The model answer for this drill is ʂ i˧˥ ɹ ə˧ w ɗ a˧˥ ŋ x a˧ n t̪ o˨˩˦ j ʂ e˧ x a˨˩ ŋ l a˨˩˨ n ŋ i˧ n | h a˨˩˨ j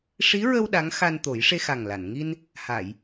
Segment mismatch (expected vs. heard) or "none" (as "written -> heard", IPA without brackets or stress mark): none